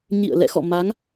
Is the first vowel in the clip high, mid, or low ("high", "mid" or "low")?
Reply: high